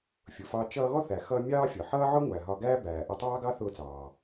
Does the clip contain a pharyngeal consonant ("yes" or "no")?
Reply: yes